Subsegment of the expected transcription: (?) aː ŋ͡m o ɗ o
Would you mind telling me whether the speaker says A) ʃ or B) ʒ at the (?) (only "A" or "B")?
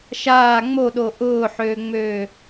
A